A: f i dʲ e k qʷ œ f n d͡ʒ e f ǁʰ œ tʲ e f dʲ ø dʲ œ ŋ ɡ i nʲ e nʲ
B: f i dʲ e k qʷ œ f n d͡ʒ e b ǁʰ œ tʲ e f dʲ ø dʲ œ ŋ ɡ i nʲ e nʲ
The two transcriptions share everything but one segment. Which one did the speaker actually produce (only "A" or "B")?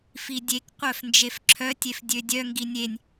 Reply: A